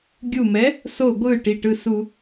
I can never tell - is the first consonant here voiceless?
no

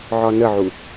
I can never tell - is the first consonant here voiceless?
no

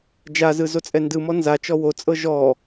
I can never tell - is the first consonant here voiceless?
no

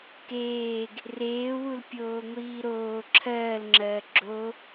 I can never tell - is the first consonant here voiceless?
yes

